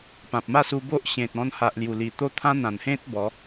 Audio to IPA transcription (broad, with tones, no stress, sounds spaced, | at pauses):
p ã˨ p̚ m a˥˧ s u˧ b o˦ ʔ ɕ ẽ˨ t̚ ɔ̃˧ n h a˨ ʔ l j u˨˩ l i˨˩ t̪ o˦ t̪ʰ ã˦ n̪ ã˨˩ n h ẽ˦ t̚ b ɔ˨˦